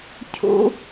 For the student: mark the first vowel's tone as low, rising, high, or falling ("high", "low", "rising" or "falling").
high